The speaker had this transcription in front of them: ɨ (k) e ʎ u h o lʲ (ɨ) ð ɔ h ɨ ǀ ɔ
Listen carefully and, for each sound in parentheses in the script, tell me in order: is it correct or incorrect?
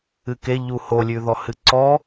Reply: correct, incorrect

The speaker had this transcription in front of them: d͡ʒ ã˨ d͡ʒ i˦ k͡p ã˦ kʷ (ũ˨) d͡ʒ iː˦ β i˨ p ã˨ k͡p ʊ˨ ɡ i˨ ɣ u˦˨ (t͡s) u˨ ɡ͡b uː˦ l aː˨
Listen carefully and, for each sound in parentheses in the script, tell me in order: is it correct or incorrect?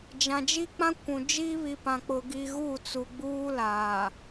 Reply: correct, correct

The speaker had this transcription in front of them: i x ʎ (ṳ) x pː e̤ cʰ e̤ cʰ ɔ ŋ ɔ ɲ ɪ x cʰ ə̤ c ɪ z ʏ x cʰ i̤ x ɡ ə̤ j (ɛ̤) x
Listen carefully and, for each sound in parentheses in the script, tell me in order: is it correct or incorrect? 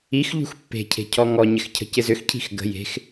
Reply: correct, incorrect

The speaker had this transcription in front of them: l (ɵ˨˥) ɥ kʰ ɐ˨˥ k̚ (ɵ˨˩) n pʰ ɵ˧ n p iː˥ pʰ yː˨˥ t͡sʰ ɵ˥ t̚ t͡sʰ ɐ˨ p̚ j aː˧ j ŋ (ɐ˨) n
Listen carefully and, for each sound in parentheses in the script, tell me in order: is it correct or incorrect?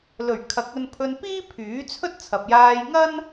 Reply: incorrect, incorrect, incorrect

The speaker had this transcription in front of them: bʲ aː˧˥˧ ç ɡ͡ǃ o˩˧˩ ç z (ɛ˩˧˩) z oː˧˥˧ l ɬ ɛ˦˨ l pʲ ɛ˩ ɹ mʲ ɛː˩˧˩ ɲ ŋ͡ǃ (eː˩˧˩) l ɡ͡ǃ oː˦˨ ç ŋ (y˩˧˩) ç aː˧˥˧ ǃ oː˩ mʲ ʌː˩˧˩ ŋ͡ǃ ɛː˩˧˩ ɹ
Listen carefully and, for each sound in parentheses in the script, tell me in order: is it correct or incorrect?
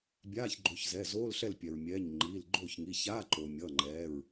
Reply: correct, incorrect, incorrect

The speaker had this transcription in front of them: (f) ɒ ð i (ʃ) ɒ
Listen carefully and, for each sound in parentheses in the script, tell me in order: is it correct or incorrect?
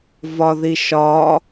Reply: incorrect, correct

